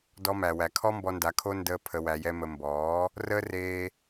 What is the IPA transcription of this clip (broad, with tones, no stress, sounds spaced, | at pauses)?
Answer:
d ɔ˧ m æ˨ w æ˨ kʰ ɔ˦ m b ɔ˧ n d a˨˦ kʰ o˦ n d əː˧ pʰ ə˧ w æ˧ j ɛ˦ m ə˧ m b ɔː˨˦ | r əː˦ r eː˧